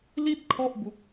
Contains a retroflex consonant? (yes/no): no